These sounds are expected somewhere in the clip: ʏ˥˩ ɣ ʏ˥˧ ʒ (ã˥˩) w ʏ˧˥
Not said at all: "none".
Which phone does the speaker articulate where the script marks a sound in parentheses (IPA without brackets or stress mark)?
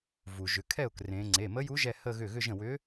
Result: ə̃˥˩